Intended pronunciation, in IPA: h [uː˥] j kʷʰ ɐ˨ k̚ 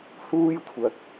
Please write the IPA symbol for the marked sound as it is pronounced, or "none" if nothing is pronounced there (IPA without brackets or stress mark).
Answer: uː˥